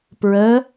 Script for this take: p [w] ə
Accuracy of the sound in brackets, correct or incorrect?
incorrect